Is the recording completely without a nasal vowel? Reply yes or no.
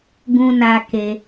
no